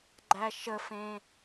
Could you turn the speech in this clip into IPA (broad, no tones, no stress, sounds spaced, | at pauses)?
ɡ͡ǃ æ ʃ ə f ẽ